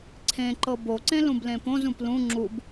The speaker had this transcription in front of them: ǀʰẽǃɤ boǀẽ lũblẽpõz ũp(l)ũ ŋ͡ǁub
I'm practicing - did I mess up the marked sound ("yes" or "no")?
no